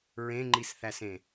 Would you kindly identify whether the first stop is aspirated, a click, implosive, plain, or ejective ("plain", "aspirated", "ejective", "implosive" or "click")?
click